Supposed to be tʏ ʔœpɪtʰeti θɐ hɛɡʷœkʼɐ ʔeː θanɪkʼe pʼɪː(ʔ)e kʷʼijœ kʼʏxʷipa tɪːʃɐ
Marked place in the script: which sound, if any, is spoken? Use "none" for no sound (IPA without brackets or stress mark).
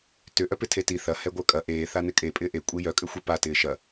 ʔ